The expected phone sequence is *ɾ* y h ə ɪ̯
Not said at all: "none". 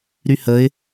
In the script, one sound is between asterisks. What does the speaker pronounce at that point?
ɾ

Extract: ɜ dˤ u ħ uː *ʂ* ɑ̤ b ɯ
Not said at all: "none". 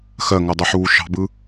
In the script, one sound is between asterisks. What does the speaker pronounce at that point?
ʃ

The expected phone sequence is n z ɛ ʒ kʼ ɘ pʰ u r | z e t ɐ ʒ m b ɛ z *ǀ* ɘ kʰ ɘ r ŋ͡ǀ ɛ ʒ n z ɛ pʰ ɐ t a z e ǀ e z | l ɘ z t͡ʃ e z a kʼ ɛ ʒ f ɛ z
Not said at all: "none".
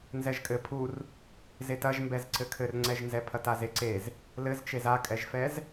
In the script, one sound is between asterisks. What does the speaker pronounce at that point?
ǀ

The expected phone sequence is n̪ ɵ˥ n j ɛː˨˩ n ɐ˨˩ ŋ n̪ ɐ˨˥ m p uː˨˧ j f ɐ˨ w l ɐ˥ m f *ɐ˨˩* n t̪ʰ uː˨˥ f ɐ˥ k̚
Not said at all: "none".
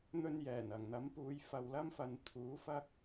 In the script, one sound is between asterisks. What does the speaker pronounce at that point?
ɐ˨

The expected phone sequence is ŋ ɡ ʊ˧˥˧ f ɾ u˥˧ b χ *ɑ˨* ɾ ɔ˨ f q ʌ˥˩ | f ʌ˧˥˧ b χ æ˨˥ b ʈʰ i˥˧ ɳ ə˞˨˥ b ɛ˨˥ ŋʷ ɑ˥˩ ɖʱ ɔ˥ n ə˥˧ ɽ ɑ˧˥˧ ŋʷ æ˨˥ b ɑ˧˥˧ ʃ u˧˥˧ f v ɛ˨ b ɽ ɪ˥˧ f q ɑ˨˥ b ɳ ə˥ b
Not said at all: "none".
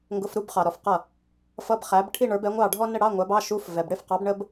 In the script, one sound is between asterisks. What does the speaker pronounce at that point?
ɑ˨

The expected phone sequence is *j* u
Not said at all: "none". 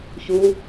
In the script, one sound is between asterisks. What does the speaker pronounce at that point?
ç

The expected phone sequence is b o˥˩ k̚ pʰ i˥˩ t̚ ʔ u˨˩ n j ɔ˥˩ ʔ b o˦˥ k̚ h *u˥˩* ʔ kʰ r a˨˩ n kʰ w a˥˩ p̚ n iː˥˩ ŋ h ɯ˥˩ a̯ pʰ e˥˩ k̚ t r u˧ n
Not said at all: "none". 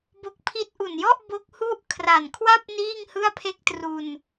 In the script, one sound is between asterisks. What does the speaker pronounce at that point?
u˥˩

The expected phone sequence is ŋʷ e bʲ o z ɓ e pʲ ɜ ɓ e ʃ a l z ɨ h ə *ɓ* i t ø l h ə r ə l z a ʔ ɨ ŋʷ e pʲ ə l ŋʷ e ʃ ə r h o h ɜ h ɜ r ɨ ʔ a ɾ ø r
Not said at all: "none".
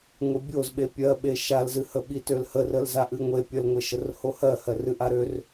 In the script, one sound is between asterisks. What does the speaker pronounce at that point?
ɓ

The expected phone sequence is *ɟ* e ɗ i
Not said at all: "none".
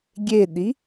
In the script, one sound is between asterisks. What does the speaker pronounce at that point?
ɡʲ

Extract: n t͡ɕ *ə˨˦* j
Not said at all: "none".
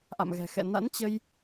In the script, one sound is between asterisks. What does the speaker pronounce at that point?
ə˧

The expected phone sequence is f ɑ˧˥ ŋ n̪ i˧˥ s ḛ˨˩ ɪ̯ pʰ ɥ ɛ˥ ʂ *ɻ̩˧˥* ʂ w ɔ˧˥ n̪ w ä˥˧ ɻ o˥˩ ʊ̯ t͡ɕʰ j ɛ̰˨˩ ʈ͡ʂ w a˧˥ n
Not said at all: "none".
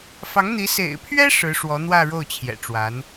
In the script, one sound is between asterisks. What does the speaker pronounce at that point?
ɻ̩˧˥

